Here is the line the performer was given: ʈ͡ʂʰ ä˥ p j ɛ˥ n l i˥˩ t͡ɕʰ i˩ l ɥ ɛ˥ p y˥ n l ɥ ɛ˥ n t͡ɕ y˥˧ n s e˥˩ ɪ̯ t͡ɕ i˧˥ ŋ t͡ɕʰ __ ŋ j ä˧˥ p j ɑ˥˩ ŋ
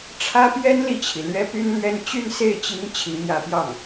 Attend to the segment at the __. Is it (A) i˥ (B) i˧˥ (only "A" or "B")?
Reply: B